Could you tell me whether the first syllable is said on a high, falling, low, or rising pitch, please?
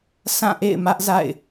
falling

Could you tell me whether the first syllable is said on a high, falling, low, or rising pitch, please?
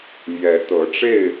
rising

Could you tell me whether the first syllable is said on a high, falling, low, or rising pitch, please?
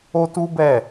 high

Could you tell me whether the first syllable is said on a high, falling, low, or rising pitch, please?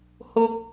high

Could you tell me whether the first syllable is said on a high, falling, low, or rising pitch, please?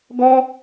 high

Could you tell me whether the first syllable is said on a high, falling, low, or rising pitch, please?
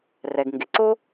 low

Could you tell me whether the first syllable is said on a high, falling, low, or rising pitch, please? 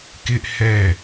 high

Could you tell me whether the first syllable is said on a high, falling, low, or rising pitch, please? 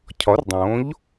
rising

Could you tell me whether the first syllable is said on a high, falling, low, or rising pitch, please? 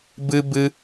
high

